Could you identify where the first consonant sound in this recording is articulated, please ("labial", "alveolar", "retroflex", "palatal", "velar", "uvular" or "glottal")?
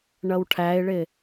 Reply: retroflex